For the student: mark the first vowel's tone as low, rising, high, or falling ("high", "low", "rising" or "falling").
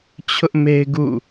high